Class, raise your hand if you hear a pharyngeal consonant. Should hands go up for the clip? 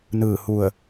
no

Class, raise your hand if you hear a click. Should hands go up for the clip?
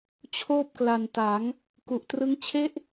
no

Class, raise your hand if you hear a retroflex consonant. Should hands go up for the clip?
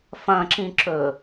no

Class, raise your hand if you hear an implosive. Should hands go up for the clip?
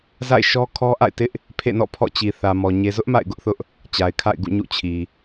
no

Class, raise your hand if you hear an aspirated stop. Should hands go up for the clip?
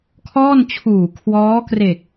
yes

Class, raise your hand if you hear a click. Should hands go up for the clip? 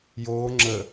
yes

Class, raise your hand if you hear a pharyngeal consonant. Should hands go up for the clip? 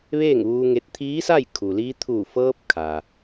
no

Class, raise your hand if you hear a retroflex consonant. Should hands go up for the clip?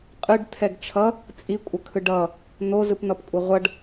yes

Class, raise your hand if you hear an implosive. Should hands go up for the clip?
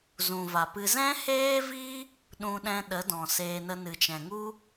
yes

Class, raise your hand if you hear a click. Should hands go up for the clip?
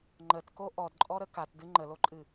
yes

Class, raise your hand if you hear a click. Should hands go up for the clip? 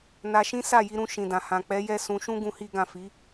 no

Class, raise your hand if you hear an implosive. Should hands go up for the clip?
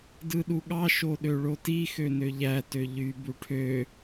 yes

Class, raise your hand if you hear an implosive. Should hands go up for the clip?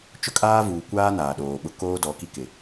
yes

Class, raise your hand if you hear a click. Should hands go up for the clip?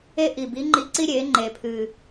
yes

